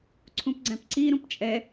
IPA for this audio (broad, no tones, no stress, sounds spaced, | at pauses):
ǀʰ ũ p ɡ͡ǀ æ̃ p ǀ i ɾ ũ p t͡ʃʼ ɛ